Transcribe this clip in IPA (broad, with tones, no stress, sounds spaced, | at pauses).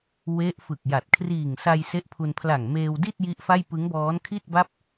w e˦˥ ʔ f ɯ˨˩ k̚ j a˨˩ t̚ kʰ r iː˨˩ ŋ s a˧ j s e˦˥ ʔ pʰ u˧ n pʰ l a˨˩ ŋ m eː˧ w d i˥˩ t̚ j i˦˥ ʔ f a˥˩ j p ɯ˦˥ ŋ b ɔː˦˥ n kʰ i˥˩ t̚ b a˥˩ p̚